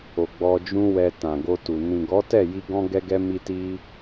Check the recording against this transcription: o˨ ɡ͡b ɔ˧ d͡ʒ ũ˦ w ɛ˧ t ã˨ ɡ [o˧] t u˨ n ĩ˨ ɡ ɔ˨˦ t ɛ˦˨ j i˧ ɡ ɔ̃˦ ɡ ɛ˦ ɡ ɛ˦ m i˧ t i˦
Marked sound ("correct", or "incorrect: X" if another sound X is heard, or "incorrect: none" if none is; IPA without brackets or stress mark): correct